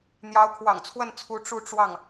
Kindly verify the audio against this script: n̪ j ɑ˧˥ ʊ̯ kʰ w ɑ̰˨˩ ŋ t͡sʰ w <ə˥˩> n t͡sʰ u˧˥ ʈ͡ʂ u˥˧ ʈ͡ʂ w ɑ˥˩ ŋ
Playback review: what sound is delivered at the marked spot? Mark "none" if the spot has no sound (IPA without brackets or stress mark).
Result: ə˥˩